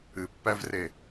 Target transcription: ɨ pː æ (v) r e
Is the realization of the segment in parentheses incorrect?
no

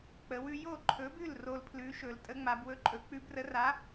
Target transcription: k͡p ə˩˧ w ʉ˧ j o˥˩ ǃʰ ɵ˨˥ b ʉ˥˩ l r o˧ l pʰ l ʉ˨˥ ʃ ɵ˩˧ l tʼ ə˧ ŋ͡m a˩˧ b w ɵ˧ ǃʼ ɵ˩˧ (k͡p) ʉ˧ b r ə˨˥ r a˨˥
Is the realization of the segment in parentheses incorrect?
no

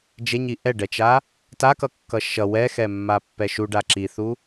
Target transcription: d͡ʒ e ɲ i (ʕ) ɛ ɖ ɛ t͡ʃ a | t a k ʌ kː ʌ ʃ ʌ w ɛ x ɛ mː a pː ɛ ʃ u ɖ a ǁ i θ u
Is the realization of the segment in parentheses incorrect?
yes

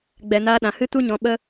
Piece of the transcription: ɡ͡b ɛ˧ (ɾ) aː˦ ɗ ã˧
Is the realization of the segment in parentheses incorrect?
yes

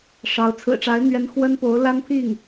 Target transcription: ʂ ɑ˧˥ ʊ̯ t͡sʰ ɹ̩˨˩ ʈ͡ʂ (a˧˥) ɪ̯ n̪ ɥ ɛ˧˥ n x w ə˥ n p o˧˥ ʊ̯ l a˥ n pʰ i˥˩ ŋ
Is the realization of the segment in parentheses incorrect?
no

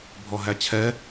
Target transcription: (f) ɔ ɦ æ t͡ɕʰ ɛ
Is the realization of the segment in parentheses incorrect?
yes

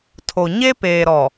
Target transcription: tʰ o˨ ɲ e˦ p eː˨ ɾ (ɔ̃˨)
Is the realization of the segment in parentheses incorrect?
yes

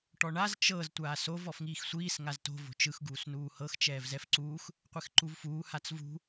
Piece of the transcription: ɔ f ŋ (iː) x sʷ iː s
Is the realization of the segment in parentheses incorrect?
no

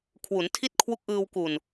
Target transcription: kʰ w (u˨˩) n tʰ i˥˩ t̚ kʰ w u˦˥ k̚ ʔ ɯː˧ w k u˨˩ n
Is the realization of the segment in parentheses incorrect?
yes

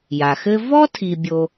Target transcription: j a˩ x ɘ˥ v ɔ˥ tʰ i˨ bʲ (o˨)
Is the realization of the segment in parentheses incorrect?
no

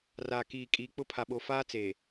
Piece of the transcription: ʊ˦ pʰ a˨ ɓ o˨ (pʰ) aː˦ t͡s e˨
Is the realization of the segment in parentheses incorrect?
yes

